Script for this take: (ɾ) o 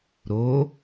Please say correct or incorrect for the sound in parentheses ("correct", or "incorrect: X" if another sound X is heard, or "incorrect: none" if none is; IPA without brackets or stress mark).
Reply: correct